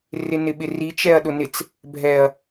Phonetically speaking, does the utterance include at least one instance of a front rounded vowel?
no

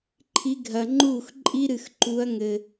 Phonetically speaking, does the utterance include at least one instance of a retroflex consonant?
no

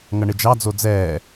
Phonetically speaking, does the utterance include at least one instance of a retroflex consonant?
yes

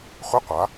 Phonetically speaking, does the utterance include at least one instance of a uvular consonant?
yes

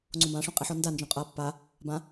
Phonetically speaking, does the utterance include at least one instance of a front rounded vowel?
no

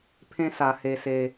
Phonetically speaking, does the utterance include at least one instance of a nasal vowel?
yes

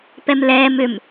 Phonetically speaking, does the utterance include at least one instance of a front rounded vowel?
yes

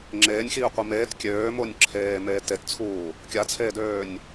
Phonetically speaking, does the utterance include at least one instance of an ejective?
no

